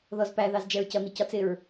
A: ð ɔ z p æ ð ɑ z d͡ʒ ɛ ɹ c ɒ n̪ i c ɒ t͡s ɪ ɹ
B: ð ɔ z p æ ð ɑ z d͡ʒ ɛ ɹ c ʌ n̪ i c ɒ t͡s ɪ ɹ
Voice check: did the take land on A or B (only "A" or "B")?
B